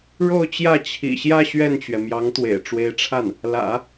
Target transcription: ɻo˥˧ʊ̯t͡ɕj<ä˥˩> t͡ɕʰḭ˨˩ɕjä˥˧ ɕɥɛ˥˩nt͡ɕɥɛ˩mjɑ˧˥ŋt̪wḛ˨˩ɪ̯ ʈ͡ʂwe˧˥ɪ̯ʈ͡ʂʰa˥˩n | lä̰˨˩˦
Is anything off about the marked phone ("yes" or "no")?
no